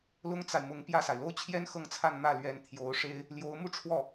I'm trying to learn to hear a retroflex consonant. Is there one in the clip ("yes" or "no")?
yes